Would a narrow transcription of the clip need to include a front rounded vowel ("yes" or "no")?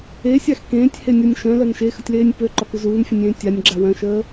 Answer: yes